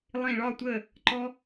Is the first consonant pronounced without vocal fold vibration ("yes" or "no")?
no